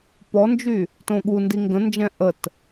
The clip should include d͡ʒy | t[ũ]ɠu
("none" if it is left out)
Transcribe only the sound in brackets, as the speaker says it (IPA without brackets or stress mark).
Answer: õ